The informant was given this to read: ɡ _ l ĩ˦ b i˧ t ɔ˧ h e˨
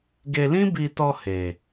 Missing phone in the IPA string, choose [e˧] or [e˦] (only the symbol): e˧